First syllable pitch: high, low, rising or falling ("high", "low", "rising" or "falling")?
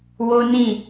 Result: high